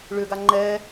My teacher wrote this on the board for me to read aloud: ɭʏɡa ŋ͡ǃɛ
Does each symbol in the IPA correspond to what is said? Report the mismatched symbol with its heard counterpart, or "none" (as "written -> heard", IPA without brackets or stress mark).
none